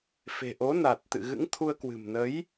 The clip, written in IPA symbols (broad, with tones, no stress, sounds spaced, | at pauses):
f e̤˨˩ ʔ o˨˦ n a˨˩ t̚ t̪ ɨ̰˧˨ ɣ ɨ̰˧˥ ŋ t̪ʰ u˧ ə̯ k w ɨ̤˨˩ m n ə˨˦ j